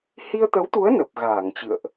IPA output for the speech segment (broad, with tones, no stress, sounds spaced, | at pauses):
h i˧ ə̯ t̪ ə˨˦ w t̪ u˨˦ ə̯ n ə˨˩ p̚ ɣ aː˧˩ ŋ t͡ɕ ɨ̰˧˨ ə̯ ʔ